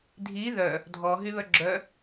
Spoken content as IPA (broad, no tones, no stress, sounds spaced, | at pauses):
dʱ i ð œ | dʱ ɔ ɦ y β œ ɡ͡ǁ œ